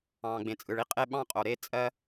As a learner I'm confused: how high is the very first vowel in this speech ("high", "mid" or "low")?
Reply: low